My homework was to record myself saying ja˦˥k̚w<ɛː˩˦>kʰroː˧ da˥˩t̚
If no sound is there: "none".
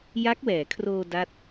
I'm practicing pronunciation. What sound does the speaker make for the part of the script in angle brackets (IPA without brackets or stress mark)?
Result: ɛː˩˦